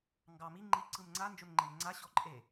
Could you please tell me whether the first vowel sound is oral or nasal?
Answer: oral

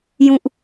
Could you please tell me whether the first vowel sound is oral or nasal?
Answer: nasal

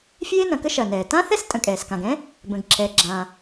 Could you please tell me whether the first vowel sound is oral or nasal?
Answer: oral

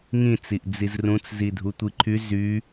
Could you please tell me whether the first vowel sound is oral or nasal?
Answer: nasal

